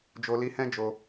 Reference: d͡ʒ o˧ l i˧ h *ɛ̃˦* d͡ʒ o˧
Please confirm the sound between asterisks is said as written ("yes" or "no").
yes